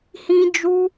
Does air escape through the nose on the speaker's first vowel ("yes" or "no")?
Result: yes